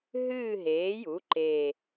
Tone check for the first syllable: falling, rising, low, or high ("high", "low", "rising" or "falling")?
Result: falling